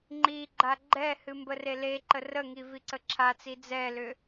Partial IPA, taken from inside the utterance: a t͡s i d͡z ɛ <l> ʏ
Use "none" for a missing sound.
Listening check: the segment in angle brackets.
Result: l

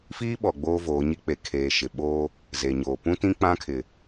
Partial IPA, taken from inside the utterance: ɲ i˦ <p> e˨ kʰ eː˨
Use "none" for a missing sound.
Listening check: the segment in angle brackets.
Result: k͡p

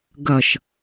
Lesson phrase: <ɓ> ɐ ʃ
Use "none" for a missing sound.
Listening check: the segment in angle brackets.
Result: ɡ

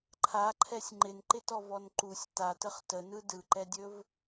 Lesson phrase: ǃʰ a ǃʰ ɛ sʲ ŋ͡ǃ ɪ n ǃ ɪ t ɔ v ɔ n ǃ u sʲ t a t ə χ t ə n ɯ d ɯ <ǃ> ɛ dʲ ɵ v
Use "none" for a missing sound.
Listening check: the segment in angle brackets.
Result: ǃ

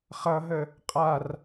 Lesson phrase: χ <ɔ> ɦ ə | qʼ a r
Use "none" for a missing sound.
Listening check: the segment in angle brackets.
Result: ʌ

